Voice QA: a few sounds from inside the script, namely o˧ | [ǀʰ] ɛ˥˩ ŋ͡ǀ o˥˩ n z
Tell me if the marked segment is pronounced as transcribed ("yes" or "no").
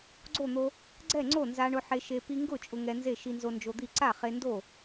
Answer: no